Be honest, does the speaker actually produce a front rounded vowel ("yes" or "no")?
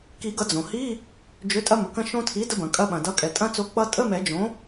yes